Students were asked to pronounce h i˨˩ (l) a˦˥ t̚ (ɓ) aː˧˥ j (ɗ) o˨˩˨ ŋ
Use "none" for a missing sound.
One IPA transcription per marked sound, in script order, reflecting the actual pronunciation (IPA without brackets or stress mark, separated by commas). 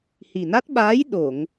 n, ɓ, ɗ